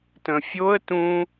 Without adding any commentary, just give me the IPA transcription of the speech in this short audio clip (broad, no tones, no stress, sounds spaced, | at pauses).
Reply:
t ə̃ fʲ o ə̯ t ũ